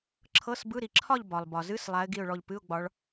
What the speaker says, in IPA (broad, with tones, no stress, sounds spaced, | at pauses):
ǁʰ ɤ˧˥˧ s b ɯ˧˥˧ ɾ i˧˩ ǁʰ ɒ˥˧ ʎ b ɒ˩ lˠ b ɒ˩ z ɨ˧˥˧ s lˠ a˨˦ ɪ̯ ɡ i˧˩ ʊ̯ ɭ ɔ˧˩ ʎ p ɨ˧˥˧ ʊ̯ ɡ͡b ɒ˨˦ ɭ